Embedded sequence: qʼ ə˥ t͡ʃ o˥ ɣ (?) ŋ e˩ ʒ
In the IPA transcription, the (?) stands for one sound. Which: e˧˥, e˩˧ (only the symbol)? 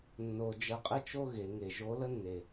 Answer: e˩˧